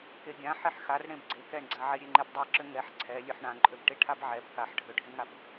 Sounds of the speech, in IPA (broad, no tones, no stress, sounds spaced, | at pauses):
k e ɡʲ ã ħ e ħ x a r ɽ ẽ b ɡ͡ǀ e k ɛ ɳ ɡ͡ǀ a ʕ e ɾʲ e ŋ͡ǃ e b dˤ ɛ ǁ ø ŋ ɛ ħ ǀʰ ɛ lʲ ø ħ ɳ ã ǃʼ ø b ʈ e ʈʰ a b ʕ ɛ b k a ħ ɖʱ ø ɖʱ ẽ ŋ a b